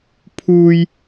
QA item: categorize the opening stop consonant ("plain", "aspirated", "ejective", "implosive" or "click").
aspirated